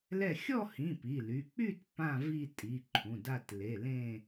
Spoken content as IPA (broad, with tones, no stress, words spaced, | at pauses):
lɛ˥˧ xʲɔ˥˧hĩ˩˧˩ pi˩˧˩ ly˩˧˩ k͡py˥˧t pã˥˧vi˥˧tʼi˩˧˩ ǃʰũ˩˧˩da˥˧t le˩˧˩ lẽ˥˧